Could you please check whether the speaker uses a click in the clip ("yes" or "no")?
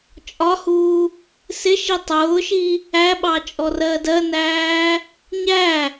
no